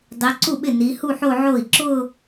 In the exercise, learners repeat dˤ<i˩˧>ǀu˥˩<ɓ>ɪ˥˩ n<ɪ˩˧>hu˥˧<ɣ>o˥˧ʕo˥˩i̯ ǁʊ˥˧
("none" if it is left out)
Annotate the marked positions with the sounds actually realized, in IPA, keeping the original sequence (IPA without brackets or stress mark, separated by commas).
i˩˧, ɓ, i˩˧, ħ